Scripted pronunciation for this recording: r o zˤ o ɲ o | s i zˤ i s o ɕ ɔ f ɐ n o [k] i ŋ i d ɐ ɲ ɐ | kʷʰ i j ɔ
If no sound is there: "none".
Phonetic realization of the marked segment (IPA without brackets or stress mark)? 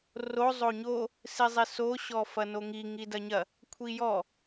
ŋ